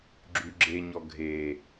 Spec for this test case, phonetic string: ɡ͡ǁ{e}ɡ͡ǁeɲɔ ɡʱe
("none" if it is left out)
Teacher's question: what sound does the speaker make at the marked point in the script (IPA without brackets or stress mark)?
y